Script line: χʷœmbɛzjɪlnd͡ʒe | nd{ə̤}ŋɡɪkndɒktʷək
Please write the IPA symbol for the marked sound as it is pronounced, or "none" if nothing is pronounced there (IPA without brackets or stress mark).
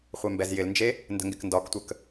ə̤